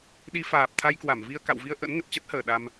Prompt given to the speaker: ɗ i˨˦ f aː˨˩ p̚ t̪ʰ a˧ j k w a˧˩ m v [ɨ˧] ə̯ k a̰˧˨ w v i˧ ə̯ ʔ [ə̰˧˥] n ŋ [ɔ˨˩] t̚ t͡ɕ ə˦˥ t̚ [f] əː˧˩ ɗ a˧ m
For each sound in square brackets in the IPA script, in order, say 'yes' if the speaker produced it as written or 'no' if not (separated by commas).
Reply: no, yes, no, no